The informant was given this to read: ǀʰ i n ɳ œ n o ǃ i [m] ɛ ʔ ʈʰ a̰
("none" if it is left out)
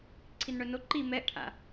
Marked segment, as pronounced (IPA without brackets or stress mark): m